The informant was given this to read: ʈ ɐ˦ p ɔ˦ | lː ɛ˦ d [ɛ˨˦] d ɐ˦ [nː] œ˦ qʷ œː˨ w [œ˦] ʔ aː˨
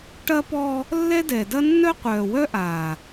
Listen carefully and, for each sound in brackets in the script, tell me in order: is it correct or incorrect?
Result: incorrect, correct, correct

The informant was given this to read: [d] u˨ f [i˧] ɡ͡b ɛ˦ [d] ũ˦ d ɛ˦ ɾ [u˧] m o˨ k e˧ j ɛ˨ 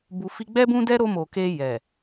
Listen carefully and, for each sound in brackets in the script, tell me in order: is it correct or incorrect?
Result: incorrect, correct, incorrect, incorrect

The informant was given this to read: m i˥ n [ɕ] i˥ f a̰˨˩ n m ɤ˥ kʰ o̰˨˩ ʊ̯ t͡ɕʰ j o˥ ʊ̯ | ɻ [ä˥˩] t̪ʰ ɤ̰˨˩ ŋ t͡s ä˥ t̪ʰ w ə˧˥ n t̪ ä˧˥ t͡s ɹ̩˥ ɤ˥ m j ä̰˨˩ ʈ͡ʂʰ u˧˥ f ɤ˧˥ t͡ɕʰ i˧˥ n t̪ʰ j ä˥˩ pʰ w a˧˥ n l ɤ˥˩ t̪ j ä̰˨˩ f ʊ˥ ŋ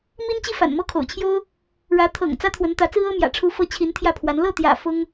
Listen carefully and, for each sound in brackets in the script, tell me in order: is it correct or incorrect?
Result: incorrect, incorrect

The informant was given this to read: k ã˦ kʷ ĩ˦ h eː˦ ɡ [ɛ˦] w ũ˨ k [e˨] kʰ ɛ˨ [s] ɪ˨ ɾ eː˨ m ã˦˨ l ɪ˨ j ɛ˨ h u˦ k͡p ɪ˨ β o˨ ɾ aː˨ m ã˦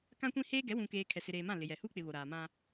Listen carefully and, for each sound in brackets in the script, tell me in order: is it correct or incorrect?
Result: incorrect, incorrect, correct

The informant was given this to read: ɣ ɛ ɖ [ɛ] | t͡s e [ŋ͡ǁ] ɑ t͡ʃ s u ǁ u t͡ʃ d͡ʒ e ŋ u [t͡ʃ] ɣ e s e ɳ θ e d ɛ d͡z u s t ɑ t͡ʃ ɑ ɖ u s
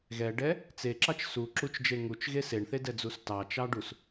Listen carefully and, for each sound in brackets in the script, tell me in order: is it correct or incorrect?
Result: correct, incorrect, correct

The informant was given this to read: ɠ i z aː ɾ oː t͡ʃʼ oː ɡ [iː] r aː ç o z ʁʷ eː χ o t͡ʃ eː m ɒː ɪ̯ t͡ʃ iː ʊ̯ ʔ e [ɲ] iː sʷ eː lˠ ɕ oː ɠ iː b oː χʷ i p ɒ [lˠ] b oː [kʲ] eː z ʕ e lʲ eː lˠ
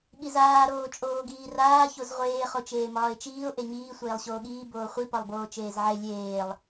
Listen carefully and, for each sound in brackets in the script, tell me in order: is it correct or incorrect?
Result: correct, correct, correct, incorrect

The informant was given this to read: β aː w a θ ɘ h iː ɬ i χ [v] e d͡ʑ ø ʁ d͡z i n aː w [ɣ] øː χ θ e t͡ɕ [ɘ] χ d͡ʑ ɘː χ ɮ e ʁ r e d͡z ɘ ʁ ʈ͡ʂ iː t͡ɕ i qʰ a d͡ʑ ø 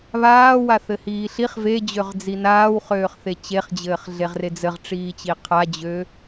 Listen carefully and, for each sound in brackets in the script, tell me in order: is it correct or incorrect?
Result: correct, incorrect, incorrect

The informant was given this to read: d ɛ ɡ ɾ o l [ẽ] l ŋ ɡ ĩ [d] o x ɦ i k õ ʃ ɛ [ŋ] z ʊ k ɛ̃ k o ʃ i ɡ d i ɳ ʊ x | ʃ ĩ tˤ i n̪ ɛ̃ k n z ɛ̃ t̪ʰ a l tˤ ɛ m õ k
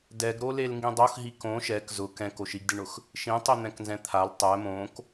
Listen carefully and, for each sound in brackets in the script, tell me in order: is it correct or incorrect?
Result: incorrect, incorrect, incorrect

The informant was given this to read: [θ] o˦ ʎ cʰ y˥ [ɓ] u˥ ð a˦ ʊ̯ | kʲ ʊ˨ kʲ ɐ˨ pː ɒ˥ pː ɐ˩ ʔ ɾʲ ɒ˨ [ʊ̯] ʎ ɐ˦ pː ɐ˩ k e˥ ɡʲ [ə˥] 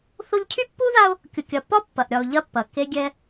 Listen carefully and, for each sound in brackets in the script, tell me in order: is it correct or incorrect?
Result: correct, incorrect, correct, incorrect

